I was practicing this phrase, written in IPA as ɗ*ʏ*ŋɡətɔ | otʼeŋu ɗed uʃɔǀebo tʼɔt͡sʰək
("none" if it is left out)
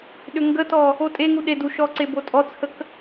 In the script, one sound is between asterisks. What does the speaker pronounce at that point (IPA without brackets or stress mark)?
ʏ